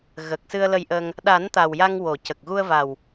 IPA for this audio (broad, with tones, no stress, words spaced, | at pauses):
ɣə˨˩k̚ sɨ˧ə̯lə˧jʔə˧ŋ | ɗa˨˩˦n t̪a˨˩wja˧ŋwo˨˩˨ cə˨˩k̚ɣu˧ə̯va˨˩w